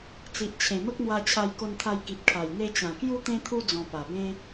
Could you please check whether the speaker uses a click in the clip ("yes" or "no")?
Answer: no